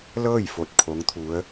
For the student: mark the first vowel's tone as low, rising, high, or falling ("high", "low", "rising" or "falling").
falling